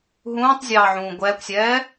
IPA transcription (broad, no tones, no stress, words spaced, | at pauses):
ɦũːtˤzʲɑːʕũː ɡʷɛːkʷsʲɛː